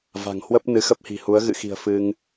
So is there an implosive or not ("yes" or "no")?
no